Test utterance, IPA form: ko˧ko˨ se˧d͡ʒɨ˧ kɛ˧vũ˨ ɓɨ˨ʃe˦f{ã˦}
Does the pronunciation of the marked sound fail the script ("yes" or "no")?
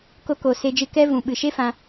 yes